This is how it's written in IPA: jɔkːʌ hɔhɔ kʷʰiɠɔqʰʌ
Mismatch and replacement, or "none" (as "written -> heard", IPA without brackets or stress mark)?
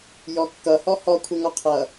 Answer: ɠ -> ŋ